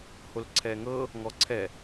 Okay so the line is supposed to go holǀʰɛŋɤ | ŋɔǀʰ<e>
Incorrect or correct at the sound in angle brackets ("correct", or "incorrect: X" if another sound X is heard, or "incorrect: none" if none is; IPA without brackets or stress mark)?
incorrect: ɛ